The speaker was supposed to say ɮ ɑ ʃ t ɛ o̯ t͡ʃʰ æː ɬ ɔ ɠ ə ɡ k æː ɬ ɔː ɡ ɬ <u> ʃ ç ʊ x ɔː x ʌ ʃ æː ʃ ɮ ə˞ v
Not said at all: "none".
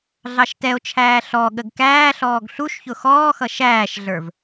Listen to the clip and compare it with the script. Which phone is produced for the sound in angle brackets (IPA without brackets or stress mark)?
u